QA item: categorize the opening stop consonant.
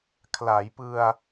aspirated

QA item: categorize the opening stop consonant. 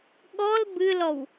implosive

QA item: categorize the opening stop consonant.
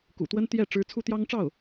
plain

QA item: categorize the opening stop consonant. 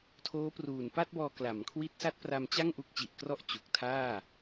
aspirated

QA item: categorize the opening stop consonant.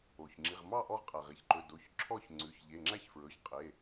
click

